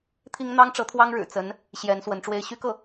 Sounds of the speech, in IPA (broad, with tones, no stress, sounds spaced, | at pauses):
t̪ʰ i˥ ŋ n̪ ɑ˥ ŋ ʈ͡ʂ ɤ˧˥ t̪ʰ w ɑ˥ ŋ ɻ ɻ̩˨˩ t͡s ə˧˥ n | ɕ j ɛ˧˥ n s w ə˧˥ n ʈ͡ʂ w e˥ ɪ̯ ɕ y˥ k ɤ˥˩